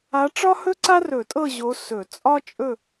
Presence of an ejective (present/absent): present